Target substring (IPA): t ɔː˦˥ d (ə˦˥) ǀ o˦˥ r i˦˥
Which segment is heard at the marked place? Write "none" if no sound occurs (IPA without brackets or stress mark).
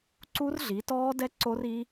ɛ˦˥